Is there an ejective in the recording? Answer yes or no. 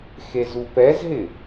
no